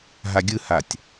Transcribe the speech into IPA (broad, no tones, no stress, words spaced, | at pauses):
ɦaɡʲɯhatʲ